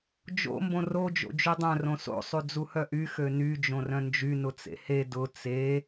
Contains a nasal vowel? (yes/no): yes